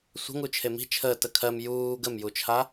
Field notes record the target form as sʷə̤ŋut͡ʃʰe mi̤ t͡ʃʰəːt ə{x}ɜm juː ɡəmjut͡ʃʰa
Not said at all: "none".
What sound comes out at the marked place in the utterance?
kʰ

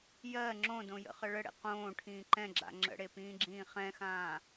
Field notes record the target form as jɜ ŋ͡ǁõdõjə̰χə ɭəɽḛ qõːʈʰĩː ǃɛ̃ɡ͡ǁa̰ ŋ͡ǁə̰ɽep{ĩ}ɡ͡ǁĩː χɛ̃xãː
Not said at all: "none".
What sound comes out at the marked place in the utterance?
ĩː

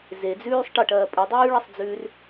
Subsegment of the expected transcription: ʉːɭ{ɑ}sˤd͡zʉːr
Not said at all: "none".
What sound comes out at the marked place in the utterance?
ɐ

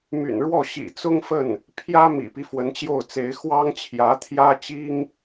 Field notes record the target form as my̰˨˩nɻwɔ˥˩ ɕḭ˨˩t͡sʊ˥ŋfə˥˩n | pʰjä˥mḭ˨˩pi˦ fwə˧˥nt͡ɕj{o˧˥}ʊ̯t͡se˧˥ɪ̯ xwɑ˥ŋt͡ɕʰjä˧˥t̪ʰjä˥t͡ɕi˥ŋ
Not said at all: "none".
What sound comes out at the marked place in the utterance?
o˥˩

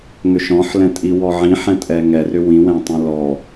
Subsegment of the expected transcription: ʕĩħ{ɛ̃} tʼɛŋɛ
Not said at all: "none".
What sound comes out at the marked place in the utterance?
ɛ̃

